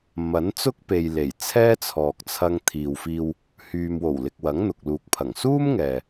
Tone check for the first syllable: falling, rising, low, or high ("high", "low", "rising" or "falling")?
rising